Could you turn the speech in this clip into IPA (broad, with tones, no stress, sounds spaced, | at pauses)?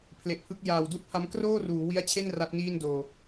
pʰ l e˨˩ ʔ pʰ ɯ˦˥ k̚ j aː˨˩ w d u˥˩ ʔ pʰ a˦˥ m k r oː˥˩ r uː˩˦ w i˦˥ a̯ t͡ɕʰ e˥˩ n r a˦˥ t̚ n iː˥˩ n d oː˨˩